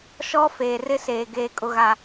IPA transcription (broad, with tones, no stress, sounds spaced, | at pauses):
ʃ ɔ˦ f eː˨ r ɪ˦ s eː˨ ɡ eː˨ kʼ ʊ˨ ɣ a˨